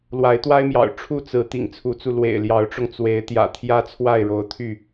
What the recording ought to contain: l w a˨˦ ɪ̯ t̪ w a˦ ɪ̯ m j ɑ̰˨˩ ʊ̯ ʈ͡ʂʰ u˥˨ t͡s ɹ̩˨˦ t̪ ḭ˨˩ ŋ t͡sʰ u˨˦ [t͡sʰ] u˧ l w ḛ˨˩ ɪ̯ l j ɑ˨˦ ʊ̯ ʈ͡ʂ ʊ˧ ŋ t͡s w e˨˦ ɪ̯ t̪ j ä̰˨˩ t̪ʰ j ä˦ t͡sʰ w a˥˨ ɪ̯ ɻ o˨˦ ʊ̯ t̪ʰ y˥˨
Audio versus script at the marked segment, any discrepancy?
yes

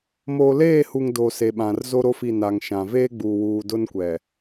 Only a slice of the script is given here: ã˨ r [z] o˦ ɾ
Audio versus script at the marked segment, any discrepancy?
no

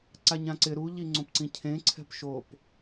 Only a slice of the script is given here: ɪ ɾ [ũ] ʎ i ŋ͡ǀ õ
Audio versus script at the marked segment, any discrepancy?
yes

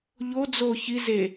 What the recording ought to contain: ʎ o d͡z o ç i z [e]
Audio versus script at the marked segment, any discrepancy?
no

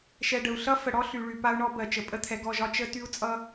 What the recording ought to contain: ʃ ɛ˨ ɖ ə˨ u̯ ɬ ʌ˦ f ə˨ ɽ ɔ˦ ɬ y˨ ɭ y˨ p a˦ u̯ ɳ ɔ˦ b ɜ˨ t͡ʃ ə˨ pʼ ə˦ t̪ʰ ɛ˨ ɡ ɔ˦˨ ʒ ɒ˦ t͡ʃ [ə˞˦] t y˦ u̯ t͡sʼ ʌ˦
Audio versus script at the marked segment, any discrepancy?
yes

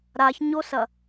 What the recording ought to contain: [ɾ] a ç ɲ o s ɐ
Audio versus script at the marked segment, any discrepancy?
no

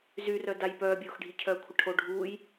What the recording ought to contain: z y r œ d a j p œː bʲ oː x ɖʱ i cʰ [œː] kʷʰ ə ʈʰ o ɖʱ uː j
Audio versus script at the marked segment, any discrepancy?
no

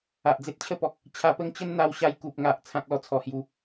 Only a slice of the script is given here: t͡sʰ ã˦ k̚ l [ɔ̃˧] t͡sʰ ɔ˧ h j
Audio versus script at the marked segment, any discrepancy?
yes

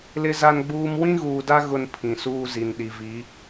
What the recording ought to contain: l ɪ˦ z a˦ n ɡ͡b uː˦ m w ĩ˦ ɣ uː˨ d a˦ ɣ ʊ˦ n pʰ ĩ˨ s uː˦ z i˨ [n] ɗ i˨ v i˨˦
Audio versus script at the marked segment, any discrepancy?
no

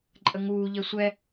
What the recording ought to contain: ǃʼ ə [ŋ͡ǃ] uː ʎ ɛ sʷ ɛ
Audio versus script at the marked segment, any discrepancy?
yes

